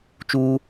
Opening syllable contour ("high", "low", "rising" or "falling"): high